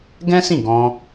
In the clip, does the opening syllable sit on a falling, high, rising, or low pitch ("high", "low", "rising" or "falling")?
high